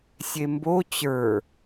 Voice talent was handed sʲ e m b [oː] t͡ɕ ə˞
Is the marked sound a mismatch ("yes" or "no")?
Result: yes